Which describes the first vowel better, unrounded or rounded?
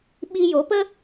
unrounded